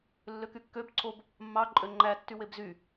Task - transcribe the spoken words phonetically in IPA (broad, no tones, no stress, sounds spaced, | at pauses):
lː ø k y kː ø b ǀʰ o b | mː ɑ ǃʼ ø ŋ͡ǃ æ tː y w e b z y